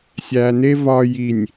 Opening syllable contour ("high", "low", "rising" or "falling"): low